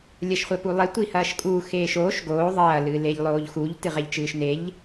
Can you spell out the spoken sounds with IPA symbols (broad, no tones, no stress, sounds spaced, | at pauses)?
lʲ ɐ ʃ χʷ ɛ p u lˠ e tʷ i h ɐː ʃ kʼ u x eː ʃ oː ʃ ɡ oː ðˤ ɐː l ɨː l e ʎ lˠ oː ʎ x u ʎ t ɨ ʁ ɛ ʎ t͡ʃ ɨː ʃ n e ʎ